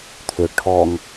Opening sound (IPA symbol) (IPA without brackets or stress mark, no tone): t̪ʰ